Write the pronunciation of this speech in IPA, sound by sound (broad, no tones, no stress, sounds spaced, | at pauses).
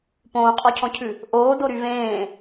p õː qʼ ɔ cʰ ɔ̃ cʰ ʉ | ʔ oː d o ɾ y v ẽː